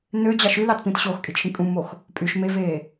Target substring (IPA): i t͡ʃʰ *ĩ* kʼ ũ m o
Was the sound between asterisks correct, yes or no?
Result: yes